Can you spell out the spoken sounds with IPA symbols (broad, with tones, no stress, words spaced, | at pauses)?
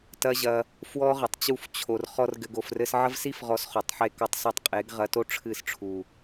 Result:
tɐ˦ʑɐ˧ | fwɔ˦ʁɘ˨tˤt͡ɕu˦˨f t͡ɕʰo˨rχɔ˧r ɡɘ˧ɡo˨frɘ˦s ʕɐ˦vsi˦fʁɔ˨˦s χo˨tˤħe˦kɔ˦tˤsu˦˨tˤ qʼe˨˦ɡʁɐ˧to˦ ʈ͡ʂʰɨ˦˨sʈ͡ʂʰu˨